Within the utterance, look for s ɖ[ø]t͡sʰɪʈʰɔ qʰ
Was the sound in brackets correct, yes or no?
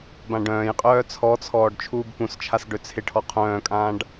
yes